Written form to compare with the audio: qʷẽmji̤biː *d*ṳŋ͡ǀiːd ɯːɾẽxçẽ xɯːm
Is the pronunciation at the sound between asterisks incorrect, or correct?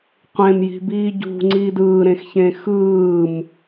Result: incorrect